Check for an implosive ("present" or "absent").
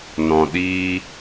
present